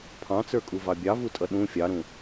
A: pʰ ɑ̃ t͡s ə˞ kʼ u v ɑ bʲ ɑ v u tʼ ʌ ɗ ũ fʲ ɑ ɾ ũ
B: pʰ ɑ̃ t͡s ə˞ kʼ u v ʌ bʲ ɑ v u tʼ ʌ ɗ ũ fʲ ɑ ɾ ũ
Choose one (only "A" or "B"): A